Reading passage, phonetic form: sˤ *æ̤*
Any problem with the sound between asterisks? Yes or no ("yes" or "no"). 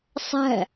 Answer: no